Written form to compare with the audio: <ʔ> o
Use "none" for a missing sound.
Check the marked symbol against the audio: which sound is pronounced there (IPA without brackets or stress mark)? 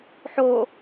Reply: ħ